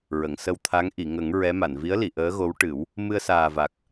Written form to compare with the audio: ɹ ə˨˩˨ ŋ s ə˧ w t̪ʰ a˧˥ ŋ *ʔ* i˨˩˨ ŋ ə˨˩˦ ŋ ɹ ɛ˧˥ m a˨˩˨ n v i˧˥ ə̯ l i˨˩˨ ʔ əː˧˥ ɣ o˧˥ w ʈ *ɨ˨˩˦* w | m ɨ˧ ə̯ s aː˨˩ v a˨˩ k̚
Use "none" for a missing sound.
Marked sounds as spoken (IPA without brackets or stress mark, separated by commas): ʔ, ɨ˨˩˦